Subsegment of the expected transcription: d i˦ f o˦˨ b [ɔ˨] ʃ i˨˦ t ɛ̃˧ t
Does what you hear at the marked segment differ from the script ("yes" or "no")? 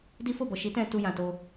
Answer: no